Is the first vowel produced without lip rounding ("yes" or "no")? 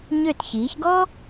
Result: no